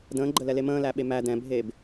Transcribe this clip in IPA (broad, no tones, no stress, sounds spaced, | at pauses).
d ə̃ː ɡ͡ǃ ə l ɛ l e m ə̃ː l æ ɓ e m æ d ɛ̃ bʱ eː b